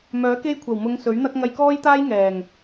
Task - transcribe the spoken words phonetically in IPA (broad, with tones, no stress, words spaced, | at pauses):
mœː˨˥ke˥jkʷʰɐ˨˩w mʊ˨˧ŋ sɵ˨˥ɥn̪ɐ˥k̚ ŋɐ˧jkɔː˥jt̪aː˥j ŋɛː˨˩ŋ